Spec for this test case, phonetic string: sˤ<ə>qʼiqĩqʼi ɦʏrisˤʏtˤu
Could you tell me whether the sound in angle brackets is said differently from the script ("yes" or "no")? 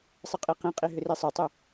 no